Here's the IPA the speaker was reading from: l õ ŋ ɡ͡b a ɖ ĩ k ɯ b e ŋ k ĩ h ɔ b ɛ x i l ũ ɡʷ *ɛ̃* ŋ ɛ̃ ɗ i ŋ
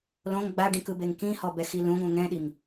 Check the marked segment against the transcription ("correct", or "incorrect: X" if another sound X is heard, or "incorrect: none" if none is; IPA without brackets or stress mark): correct